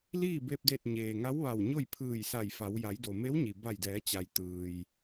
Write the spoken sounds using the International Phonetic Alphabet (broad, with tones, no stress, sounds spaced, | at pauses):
l iː˥˨ b e˧ p̚ d e˧˩ t̚ ɲ eː˩ ŋ a˧˥ w ʋ a˧˩ w ɲ o˥˨ j pʰ ɯː˧˩ j s a˧˩ j f a˩˧ w j a˩˧ j d o˩ m e˧˥ w ɲ i˩ b a˧˩ j d ɛː˩˧ t͡ɕ a˩ j t̪ ɯː˩ j